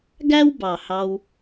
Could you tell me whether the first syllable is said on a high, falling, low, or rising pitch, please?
high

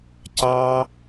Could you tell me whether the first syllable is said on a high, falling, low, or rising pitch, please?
high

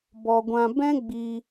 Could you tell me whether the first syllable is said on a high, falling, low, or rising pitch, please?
low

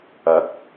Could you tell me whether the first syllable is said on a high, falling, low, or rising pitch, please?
rising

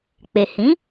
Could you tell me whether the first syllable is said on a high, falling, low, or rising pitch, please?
low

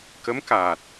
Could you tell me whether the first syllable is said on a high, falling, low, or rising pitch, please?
rising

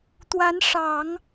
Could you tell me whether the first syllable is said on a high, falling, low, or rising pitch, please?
rising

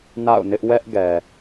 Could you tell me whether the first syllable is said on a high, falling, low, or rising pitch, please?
falling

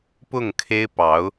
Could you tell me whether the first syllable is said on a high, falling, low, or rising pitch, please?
falling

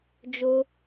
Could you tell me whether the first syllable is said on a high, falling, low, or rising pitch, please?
high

